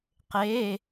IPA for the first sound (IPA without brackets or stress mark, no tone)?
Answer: q